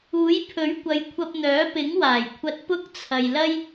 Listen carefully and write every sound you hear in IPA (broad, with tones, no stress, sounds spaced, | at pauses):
uː˨˥ j pʰ ɵ˨˥ ɥ kʷ ɐ˨˧ j kʷʰ ɐ˧ p̚ n̪ œː˨˥ p ɪ˨˥ ŋ w aː˨˩ j kʷʰ ɐ˧ t̚ p ʊ˥ k̚ t͡sʰ ɐ˨ j l ɐ˥ j